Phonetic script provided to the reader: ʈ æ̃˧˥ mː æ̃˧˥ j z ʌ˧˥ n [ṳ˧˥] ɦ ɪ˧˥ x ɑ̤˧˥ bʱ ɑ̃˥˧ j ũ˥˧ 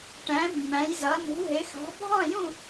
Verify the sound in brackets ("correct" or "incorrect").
correct